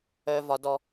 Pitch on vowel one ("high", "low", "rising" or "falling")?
low